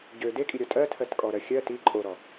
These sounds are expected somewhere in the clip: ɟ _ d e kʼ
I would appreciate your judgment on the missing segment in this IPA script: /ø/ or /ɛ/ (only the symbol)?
ø